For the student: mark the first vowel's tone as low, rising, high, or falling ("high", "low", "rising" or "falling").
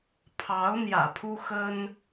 rising